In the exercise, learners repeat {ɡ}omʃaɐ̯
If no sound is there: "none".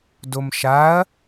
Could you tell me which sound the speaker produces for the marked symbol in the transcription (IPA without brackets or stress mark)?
d